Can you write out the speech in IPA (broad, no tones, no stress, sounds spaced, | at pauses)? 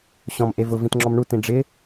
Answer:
ɕ ɔ̃ m ʔ e v ʊ v ĩ t ŋ͡ǁ ɔ m ɳ u t ĩ ɖ͡ʐ ɪ